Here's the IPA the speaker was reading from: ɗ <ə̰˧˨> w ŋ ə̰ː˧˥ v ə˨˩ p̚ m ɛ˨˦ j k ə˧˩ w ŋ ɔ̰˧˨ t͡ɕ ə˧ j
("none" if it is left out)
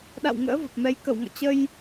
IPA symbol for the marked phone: a̰˧˨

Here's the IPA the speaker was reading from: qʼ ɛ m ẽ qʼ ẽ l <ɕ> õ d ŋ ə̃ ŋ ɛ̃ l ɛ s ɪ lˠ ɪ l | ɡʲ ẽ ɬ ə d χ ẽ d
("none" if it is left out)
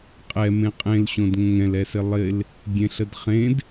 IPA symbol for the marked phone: ɕ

